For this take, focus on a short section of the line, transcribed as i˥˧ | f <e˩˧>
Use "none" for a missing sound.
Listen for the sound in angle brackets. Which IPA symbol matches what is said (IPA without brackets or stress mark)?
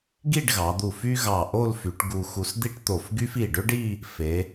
e˩˧